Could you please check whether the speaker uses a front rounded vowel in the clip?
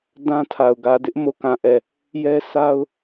no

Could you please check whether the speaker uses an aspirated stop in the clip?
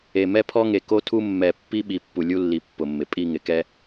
yes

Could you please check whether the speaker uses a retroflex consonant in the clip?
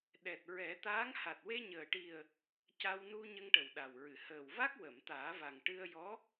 yes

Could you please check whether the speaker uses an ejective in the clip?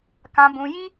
no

